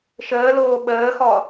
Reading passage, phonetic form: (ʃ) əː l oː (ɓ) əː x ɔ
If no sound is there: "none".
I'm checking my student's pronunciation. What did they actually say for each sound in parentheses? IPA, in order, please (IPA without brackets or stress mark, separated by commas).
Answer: ʃ, ɓ